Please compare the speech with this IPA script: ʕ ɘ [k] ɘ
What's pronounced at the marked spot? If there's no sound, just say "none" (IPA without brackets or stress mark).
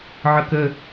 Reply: k